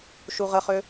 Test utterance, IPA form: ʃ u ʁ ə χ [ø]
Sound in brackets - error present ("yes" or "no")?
no